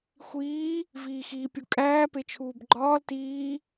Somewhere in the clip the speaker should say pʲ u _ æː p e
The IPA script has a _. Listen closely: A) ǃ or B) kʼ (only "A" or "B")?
B